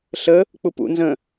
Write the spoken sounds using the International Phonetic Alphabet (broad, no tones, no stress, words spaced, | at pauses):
ɬə | k͡pupṵ nzə̃